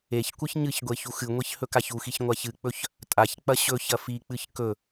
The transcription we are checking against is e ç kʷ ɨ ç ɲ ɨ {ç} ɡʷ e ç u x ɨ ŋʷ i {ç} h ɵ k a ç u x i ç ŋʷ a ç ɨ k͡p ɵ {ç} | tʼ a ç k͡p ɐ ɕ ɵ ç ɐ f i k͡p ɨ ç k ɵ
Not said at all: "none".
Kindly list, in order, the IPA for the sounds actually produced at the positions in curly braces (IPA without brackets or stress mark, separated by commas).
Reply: ç, ç, ç